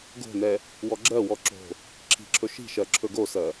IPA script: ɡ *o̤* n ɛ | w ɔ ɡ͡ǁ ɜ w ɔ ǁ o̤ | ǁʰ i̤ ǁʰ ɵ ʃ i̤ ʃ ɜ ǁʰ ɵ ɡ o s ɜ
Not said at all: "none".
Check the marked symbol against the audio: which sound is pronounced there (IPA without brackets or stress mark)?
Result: o̤